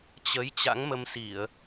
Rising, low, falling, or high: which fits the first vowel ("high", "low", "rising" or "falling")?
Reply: rising